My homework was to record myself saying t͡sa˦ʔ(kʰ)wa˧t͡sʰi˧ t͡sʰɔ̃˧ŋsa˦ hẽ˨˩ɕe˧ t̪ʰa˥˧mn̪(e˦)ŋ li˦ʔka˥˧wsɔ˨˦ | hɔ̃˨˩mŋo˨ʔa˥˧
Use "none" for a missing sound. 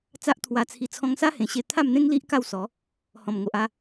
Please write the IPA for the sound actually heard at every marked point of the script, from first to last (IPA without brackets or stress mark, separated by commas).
t̪ʰ, ẽ˦